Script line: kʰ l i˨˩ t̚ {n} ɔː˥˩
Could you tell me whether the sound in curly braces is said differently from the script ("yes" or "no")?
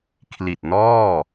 no